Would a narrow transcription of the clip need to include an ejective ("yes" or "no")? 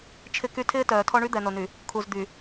no